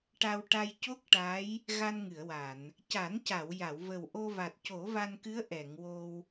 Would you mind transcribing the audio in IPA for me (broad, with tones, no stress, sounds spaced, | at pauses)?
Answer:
ʈ a˧ w ʈ a˧ j c o˦˥ k̚ ʈ a˧˥ j | ɣ a˧ n ŋ ɨ˨˩˨ ə̯ w a˨˩˨ n | c a˨˩˦ n c a˨˩˨ w j a˨˩˨ w v ə˨˩ w ʔ o˧ v a˨˩ t̚ c o˨˩˦ v a˧ n k ɨ˧˥ ə̯ ʔ ɛ˨˩˨ ŋ w o˧ w